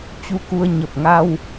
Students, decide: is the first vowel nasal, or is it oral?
oral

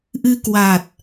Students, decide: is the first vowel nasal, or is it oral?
oral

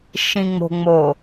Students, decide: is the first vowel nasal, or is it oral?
nasal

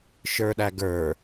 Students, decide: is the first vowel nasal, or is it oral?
oral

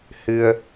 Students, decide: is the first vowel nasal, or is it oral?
oral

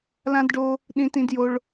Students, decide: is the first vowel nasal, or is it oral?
nasal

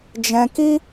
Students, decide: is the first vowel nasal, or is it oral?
nasal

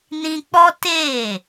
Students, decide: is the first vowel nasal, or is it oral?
nasal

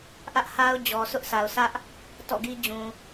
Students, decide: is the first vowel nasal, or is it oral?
oral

